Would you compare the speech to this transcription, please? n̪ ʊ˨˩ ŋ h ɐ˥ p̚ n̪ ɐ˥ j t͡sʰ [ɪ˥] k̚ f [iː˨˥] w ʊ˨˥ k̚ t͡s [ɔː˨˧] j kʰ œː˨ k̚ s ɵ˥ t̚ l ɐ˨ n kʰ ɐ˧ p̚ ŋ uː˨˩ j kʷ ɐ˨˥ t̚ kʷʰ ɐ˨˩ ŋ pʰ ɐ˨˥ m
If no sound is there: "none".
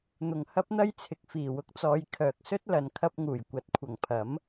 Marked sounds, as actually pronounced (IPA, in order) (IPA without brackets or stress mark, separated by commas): ɪ˨, iː˨˩, ɔː˨˧